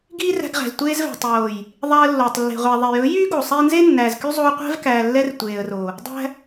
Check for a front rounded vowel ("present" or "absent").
present